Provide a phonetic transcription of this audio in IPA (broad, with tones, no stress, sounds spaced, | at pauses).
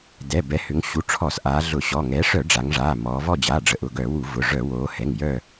d ɛ˩˧˩ b ɛ˩˧ h ʏ˩˧ ŋ ɕ u˩˧˩ ʈ͡ʂʰ ɔ˧˩˧ s ʔ aː˩˧ ɮ ʊ˧˩˧ ɕ ɔ˩˧˩ ŋ ɛ˩˧ ʂ œ˧˩˧ ɖ͡ʐ a˩˧ ŋ ʐ aː˩˧˩ m ɔː˩˧ v ɔ˦˨ d͡ʑ aː˩˧˩ ɖ͡ʐ ə˩˧ ʔ ʊ˩˧˩ ɡ œ˧˩˧ w u˧˩˧ v ʊ˩˧˩ ʐ œ˧˩˧ w oː˩˧ h ɛ˩˧˩ ŋ j œ˦˨